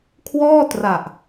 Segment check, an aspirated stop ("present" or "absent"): present